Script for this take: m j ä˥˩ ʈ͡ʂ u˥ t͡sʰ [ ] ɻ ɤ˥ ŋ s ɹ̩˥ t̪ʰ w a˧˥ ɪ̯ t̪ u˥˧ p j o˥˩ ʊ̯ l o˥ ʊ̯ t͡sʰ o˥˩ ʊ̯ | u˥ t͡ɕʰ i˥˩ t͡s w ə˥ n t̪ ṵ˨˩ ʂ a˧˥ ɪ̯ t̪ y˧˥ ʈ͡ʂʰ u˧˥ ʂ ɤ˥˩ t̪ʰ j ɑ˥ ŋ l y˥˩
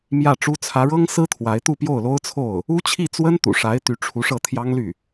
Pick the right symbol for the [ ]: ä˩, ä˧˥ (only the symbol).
ä˧˥